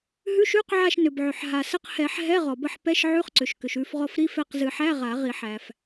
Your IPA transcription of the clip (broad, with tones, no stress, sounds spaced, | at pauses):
ɦ ʉ˧˥˧ ʃ ʉ˧˥˧ q ʕ a˦˨ ʃ n ʏ˩ b ʕ ʏ˩ ħ ɦ a˩ s ə˦˨ q h ɛ˨˩˦ ħ ɦ ɛ˧˥˧ ʁ ɔ˩ b ə˦˨ ħ p ɛ˧˥˧ ʃ ʕ ʉ˧˥˧ χ ǀ ʏ˩ ʃ k ʏ˩ ʃ ʉ˦˨ f ʁ ɔ˦˨ f ɾ i˧˥˧ f ɛ˦˨ q z ɨ˨˩˦ ħ æ˧˥˧ ʁ a˨˩˦ ʁ i˨˩˦ ħ æ˩ f